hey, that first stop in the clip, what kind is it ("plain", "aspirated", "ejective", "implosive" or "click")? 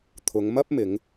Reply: aspirated